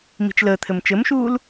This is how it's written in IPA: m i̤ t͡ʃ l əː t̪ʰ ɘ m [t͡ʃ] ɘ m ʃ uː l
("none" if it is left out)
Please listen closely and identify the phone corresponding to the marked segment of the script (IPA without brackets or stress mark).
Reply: t͡ʃ